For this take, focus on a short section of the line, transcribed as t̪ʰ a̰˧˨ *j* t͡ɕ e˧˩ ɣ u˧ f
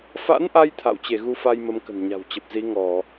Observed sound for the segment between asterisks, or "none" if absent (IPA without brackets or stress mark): w